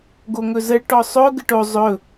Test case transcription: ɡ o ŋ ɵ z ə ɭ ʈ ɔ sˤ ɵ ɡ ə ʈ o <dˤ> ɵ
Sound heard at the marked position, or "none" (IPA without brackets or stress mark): zˤ